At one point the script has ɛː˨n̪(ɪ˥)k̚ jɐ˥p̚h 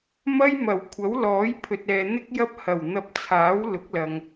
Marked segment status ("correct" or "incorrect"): correct